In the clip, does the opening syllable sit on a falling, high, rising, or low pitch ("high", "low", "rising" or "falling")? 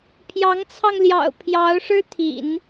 rising